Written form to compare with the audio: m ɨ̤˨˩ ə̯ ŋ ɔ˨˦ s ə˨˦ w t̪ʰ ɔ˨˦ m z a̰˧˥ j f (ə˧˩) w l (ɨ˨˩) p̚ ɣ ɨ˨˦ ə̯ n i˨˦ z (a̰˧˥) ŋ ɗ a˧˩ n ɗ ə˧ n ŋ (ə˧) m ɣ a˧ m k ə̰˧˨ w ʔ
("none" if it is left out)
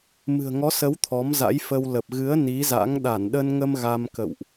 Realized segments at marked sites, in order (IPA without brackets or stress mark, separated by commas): ə˧, ə˨˩, a̰˧˥, ə˧